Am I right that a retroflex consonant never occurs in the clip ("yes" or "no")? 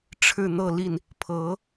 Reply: no